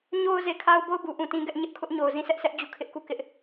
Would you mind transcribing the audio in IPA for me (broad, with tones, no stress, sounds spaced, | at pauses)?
ɲ o˦ ʊ̯ z e˨ kʰ a˦ ʊ̯ b o˦˨ ʊ̯ b u˨ ʔ ũ˨ t ĩ˦ ɡ ɛ˦ ʔ ɲ ɪ˦ ʔ kʰ ʊ˦ ʔ ɲ o˨ ʊ̯ z ĩ˦˨ s ɛ˦ ʔ s ɛ˦ ʔ d͡ʑ u˦˨ kʰ ɪ˦ ʔ k u˦˨ k ɪ˦ ʔ